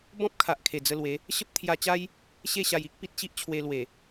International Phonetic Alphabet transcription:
b ɔ̃˦ p̚ kʰ a˨ ʔ kʰ e˨˩ d͡z ə˧ l w e˨˦ | ɕ ə˦ p̚ t̪ʰ j a˧ t͡ɕ a˦ j | ɕ e˥˧ ɕ a˧ j i˦ k̚ p i˦ t̚ ɕ i˦ ʔ t͡ɕʰ w e˧ l w e˨˩

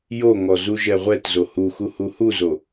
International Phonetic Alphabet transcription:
j o ŋ ɔ z u ʒ ɛ ʁʷ ɛ t z o h u x u h u h u z o

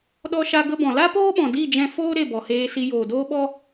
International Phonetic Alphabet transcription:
ɗ ɔ˧ ʃ a˧ ɡ ə˧ b ɔ̃˨ l a˦ p oː˦ ɓ ɔ̃˨ d i˦˨ d͡ʒ ɛ̃˧ f oː˦ ɾ e˦˨ b ɔ˨ h eː˧ s i˧ j oː˨ d oː˦ ɓ ɔ˦

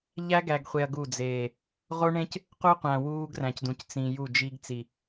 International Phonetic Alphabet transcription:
ʎ æ˦ ɡ æ˨ ɡ χʷ e˨ ɐ̯ ɡ u˦˨ d͡z eː˨ | ʁ o˦ ɳ ẽ˦ c | q u˦ qʷ æ̃˨ w uː˦ ɡ r æ̃˨ c d ũ˨ c t͡s ĩ˨ j u˦˨ d͡ʒ i˦ ɡ t͡s i˨

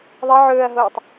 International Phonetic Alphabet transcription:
ðˤ ɐ ʕ ɵː ɐ̯ ɦ oː tˤ

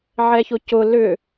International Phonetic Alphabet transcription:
ʕ ɛ ç ʊ c ʊ l ʏ

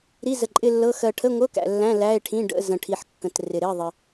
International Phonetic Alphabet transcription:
ɾ i˧˥˧ z ə˨ ǃʼ ɪ˧˥˧ lː ɤ˧˥˧ x ɜ˨ ʈʰ ə˧˥˧ ŋʷ ɤ˧˥˧ k æ̰˨ lː æ̃˧˥˧ l æ˧˥˧ e̯ ʈʰ ĩ˧˥˧ ɖ ə̰˧˥˧ z ə̃˨ ʈʰ i˨ ħ kː ə̃˨ t r ɪ˨ ɾ ɪ˧˥˧ ðˤ ɪ˨

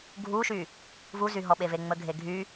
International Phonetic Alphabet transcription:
ɡʱ u ʃ y | v u z y ɦ ɔ ɓ e v e ŋ͡m ə ɡʱ e ɡʱ y

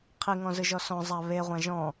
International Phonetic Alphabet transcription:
qʰ i ŋ ɔ̃ z ɯ ʒ ɔ s ɔ̃ zˤ a β e ʁʷ ã ʒ ɔ̃

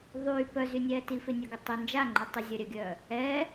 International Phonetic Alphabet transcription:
ðˤ yː p œ z y nʲ ɛː t i f ɪ nʲ ɐ ɡ ɪ tˤ ʏ n d͡ʒ a ŋ͡ǃ y tˤ ɪ zʲ ɐ ɾʲ œ ɡʲ œː | ɛ

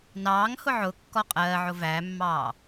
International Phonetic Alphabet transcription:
n ɑː ŋ h ʊ ʕ ʊ kː ɔ qʼ ɜː ʕ ʊ v æ mː ɑː

